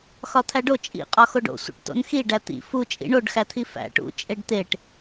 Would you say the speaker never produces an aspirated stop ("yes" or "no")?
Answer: no